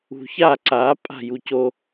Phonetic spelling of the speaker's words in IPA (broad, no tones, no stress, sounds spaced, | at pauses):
ṳ ç a ǀ a pʼ a̤ j u c o